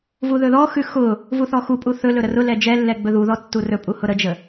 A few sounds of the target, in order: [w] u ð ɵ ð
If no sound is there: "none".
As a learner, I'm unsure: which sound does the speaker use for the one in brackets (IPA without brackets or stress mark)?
v